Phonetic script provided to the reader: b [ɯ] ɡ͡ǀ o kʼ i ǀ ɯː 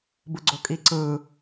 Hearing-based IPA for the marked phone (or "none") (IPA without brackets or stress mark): ɯ